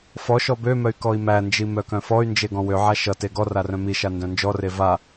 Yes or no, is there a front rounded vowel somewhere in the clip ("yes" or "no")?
yes